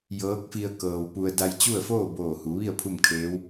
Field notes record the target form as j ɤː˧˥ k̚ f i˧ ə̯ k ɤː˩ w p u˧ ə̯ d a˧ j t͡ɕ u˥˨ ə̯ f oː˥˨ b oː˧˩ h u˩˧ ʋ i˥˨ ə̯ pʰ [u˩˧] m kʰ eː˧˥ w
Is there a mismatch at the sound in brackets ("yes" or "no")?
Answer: yes